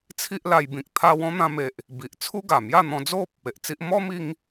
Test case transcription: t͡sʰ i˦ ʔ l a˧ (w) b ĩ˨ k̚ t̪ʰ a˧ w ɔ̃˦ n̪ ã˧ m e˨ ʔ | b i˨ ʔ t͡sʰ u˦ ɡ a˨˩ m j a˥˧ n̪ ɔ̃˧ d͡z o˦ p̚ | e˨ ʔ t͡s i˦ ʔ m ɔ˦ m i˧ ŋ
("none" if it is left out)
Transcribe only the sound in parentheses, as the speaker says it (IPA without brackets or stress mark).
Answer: j